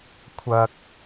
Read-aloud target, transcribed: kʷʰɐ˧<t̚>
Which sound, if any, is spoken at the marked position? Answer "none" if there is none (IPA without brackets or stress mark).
k̚